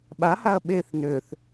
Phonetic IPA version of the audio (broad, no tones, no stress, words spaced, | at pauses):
ɓahaɐ̯ ɓeθ nøθ